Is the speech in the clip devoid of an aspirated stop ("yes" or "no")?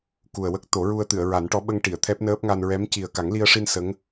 no